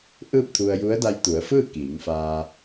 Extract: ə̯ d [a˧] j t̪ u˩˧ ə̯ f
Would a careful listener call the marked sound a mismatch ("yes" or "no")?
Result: no